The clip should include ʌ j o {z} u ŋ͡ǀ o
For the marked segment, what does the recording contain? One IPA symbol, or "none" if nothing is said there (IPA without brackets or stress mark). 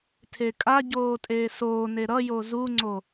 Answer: z